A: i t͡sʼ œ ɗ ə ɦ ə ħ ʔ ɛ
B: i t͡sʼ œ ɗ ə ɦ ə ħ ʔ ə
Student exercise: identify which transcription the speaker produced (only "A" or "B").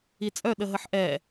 A